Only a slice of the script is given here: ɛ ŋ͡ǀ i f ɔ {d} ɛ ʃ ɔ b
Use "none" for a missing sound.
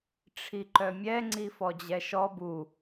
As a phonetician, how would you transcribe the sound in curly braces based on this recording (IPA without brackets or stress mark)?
d͡ʑ